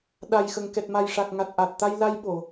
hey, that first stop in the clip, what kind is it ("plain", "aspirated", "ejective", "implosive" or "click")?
implosive